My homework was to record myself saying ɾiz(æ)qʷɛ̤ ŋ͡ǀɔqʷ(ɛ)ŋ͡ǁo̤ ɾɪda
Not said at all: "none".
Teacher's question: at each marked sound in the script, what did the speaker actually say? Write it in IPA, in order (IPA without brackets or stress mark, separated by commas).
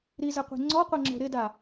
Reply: ɛ, ɛ